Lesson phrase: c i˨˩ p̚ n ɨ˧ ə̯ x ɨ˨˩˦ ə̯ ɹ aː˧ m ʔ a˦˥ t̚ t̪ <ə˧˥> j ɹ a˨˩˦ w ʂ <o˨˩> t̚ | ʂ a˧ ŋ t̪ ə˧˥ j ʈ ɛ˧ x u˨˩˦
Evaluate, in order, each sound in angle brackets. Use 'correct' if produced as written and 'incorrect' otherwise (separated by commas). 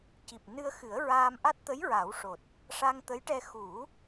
correct, correct